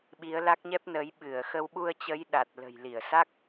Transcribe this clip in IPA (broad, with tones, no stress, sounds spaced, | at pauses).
ɓ i˨˦ ə̯ l a˦˥ k̚ ɲ ɛ˦˥ p̚ n ə˨˦ j ɓ ɨ˧˩ ə̯ x ə˧ w ɓ u˧ ə̯ t͡ɕ ə˨˦ j ɗ a˨˩ t̚ l ə̤˨˩ j l i˧˩ ə̯ s a˦˥ k̚